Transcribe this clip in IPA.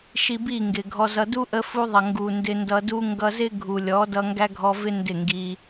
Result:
ʃ i˧ b i˦˨ ŋ ɡ ɪ˨ ɡʱ ɔ˧ z ʌ˧ d u˦ ʔ ə˧ f u˧ ðˤ ʌ˨ ŋ ɡ u˨ n d ɪ˧ n d ʌ˧ d u˦ ŋ ɡ ʌ˧ z ɪ˦ ɡʱ u˨ lʲ ɔ˨˦ d ʌ˧ ŋ ɡ æ˦ ɡʱ ɔ˧ v ɪ˦ n d ɪ˦˨ ŋ ɡ i˧

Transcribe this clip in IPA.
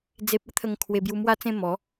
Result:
d͡z e˨ p̚ ə˦ t̪ʰ ə˨˩ ŋ kʰ w e˧ b j u˧ m w a˥˧ t͡s ẽ˥˧ m ɔ˨˦

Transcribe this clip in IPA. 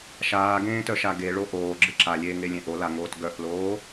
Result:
ʃ aː ɡ ẽː t œ ʃ a ɡ e ɭ o ʔ oː ɡ͡ǁ ɨ ǁ a lʲ eː ŋ e lʲ ẽ ʔ o l a ŋ oː t ɡ œ ʔ l oː

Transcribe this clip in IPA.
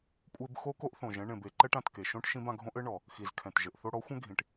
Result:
kʷʼ e˧ b x o˧ k o˧ ʔ θ õ˨ ʒ ɛ̃˧ ɳ ẽ˨ b e˨ ǃ ɛ˧ ʈ ã˨ t k e˨ ʃ õ˦ ʈ ʃ ĩ˦ b ã˧ ɡʱ õ˦ ʔ ɘ˦ ɳ ɔ˨ | x i˨ z kʰ ɛ̃˨ t ʒ ɘ˨ ʔ θ o˧ ɽ ɔ˨˦ xʷ ɛ̃˦ ɡʱ ĩ˨ ʈ

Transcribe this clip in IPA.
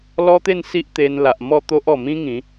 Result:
l ɔ˦ t̪ e˥˧ n s i˦ ʔ t̪ e˧ n l a˨ ʔ m ɔ˥˧ t̪ o˦ ʔ ɔ˨˩ m ĩ˦ ŋ ĩ˨˦

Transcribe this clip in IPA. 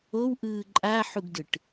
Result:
o w ʔ ɯː ǃʼ a ħ u ɡ d ɯ ʈ

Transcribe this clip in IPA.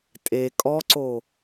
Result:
tʼ e kʼ ɔ ǀ o

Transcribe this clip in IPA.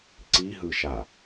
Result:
ǀ i ɦ ɯ ʃ a

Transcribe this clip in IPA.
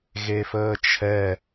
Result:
ɣ e f əː t͡ʃʰ ɛ

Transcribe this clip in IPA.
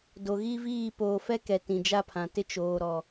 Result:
d o˨ ɣ i˦ v iː˦˨ p oː˨ f ɛ˦ k ɛ˨ t ĩ˨ d͡ʒ a˦ pʰ ã˨ t ɪ˦ t͡ʃ oː˨ ɾ ɔ˨

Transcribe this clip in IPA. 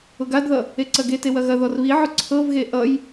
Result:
ʊ ɡ a d ð ʌ | e ǀ ɐ ɡ e t e w ɐ ɣ ɐ ð ɔ r β i ʕ ʊ ǀʰ ɤ v ɣ e ʔ ʌ j

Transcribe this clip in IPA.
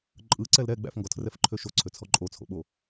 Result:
ǃʼ ɯ ǀ ɛ l ɾ ɛ ɡ͡b æ̰ f ŋ ɡ ɔ tʰ r ɛ f ǃʰ ø ʃ o ǀʰ ø t͡sʰ ɔ ǃʼ o t͡sʰ o̰ ɓ o

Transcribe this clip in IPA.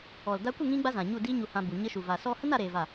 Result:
ɔ˨ l d a˧ kʷ ə˦˨ ŋ ĩ˦ ɡ͡b a˦ z ã˨ ɲ u˦˨ d iː˦ ɲ u˧ h ã˧ b u˨ ɲ ə˦ ʃ u˨ v a˨ s ɔ˧ h ə˦ n a˦ ɾ eː˧ v a˦˨

